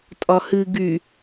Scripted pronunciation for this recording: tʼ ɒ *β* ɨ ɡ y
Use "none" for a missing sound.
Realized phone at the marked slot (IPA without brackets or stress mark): h